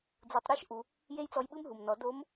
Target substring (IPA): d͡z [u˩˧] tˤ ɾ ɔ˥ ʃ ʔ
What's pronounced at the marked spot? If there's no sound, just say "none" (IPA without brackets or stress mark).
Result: u˩˧